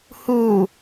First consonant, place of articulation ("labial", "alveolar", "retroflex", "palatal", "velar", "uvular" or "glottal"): glottal